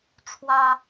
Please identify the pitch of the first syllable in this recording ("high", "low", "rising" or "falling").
high